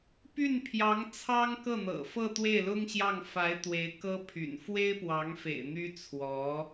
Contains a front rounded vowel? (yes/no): yes